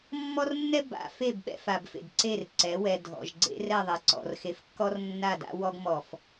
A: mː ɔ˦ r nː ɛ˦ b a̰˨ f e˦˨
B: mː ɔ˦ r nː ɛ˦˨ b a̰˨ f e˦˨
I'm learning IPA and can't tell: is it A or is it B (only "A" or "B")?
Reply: A